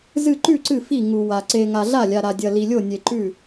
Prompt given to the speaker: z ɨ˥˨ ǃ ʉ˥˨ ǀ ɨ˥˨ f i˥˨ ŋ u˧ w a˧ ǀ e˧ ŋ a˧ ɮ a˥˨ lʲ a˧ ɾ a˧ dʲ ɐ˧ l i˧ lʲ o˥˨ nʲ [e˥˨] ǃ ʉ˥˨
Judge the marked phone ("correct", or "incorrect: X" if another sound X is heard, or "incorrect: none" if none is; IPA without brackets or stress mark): incorrect: e˧